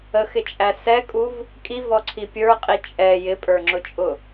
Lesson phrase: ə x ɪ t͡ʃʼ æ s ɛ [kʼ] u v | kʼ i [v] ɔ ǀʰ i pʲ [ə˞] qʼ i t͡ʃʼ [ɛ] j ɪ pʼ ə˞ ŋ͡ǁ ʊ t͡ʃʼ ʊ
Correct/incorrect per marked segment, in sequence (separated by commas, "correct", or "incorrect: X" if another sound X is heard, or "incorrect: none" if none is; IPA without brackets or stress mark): correct, correct, correct, correct